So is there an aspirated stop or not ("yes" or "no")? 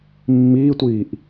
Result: no